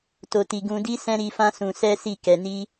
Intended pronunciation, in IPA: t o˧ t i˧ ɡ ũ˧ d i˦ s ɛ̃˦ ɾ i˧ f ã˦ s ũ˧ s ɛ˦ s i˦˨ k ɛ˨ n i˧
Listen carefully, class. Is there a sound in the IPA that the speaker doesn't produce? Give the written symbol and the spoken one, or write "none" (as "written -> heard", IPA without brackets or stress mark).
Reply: none